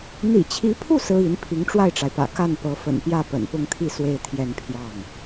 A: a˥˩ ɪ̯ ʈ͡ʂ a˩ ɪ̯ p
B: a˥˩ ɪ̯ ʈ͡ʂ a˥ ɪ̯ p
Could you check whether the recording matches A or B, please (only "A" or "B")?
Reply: A